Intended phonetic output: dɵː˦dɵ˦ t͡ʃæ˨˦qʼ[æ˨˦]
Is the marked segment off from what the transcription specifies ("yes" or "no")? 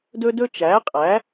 no